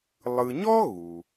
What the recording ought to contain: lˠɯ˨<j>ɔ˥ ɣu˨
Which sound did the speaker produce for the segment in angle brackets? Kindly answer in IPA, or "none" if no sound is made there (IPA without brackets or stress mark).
ɲ